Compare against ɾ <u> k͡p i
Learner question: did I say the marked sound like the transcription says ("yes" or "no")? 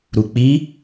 yes